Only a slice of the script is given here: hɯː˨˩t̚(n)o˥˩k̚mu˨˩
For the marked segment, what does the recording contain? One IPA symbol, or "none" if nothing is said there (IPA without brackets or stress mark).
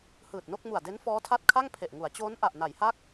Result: n